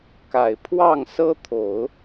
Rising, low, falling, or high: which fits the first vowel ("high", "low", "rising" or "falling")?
low